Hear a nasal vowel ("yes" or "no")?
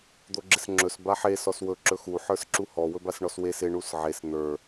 no